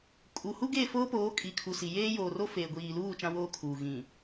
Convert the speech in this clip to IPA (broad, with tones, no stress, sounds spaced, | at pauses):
kʼ u˨ h u˦ ɡ e˦˨ f oː˦ p oː˨˦ kʼ i˨ kʰ u˨ s i˨ j eː˦ j oː˨ r o˦ f eː˨ ɡʷ iː˨ l uː˦˨ t͡ʃ ã˦ w oː˦ kʰ uː˨ ɣ ĩ˨